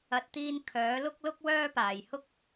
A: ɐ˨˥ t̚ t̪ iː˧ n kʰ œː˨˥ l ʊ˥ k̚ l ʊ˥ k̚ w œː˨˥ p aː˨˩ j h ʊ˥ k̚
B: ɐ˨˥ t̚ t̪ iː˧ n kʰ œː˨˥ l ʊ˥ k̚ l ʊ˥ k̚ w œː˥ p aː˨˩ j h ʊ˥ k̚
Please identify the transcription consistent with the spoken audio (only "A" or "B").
B